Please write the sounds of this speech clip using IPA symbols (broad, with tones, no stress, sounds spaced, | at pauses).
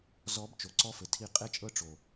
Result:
z ɔ˨˦ b t͡ʃ o˨ ǀ ɔ˦ f ɘ˨ tʰ i˦˨ qʼ e˦ t͡ʃʼ ɤ˦ ʈ͡ʂ o˨